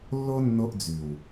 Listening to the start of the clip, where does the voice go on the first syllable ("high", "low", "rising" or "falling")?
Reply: high